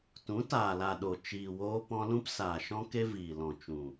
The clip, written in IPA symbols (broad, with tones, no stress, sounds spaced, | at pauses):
t ũ˨˦ t aː˨ l a˨ ɗ o˨ t͡ʃ iː˨ w oː˧ p ɔ̃˧ l ũ˦ p s aː˨ ʃ ɔ̃˦ k e˦ v iː˨ l ɔ̃˨ t͡ʃ ũ˨